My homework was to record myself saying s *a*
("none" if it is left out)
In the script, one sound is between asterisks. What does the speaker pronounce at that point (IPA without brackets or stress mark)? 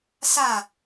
a